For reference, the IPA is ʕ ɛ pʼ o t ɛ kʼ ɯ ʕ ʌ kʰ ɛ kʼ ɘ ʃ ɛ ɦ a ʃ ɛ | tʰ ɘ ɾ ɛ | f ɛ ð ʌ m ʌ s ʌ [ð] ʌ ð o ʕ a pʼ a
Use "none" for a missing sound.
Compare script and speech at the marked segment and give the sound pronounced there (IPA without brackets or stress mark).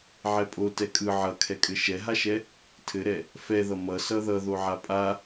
ð